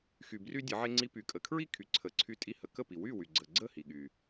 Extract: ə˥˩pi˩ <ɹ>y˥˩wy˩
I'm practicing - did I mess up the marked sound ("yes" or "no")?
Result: yes